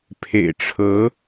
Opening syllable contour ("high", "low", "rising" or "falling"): low